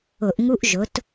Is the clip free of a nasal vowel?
yes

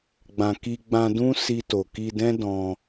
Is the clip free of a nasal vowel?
no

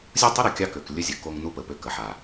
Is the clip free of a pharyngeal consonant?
no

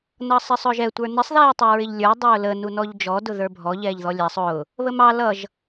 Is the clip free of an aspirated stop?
yes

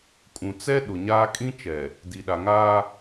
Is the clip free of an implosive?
no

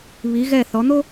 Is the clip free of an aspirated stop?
yes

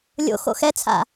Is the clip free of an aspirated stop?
no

